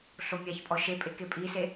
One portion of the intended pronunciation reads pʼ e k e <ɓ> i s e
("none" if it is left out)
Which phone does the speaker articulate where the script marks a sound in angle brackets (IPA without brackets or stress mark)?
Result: pʼ